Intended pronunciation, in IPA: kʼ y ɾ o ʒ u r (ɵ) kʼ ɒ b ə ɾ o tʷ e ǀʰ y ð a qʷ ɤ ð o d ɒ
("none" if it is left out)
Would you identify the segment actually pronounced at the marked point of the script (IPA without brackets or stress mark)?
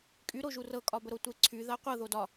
ɤ